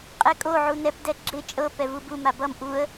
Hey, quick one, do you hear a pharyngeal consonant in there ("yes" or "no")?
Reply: yes